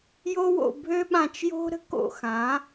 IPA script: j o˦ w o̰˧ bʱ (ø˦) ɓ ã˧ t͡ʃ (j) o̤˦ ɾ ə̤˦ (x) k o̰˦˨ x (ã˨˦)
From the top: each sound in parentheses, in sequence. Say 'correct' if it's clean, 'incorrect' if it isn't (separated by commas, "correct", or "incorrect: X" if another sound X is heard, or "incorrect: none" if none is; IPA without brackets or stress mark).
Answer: correct, correct, incorrect: none, correct